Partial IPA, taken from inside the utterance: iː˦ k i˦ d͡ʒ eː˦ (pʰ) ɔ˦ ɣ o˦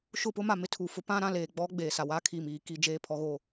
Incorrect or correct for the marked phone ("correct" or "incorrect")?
correct